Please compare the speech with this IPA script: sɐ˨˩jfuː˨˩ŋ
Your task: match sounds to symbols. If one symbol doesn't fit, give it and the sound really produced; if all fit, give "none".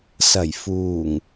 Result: none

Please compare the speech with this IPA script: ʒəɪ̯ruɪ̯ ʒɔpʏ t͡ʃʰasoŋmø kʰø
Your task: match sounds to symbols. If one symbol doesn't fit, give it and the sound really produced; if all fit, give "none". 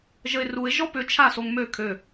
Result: none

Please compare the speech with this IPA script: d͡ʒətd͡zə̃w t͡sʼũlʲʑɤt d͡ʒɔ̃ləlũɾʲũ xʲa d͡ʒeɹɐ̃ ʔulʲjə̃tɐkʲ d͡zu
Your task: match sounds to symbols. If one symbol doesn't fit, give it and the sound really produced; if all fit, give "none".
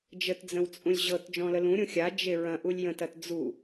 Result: kʲ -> t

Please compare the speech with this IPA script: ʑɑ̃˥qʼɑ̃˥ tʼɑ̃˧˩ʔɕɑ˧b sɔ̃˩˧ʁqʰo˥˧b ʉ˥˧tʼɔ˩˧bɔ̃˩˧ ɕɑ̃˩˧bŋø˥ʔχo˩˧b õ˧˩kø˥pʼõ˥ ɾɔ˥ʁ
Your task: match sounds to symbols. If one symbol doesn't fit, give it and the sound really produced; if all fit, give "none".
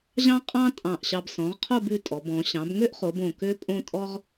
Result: ɾ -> tʼ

